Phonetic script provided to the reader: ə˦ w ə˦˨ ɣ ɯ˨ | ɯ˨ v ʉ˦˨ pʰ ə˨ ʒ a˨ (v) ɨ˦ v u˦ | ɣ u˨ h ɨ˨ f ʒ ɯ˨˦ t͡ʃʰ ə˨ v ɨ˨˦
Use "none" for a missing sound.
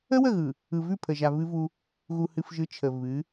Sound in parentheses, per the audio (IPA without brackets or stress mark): v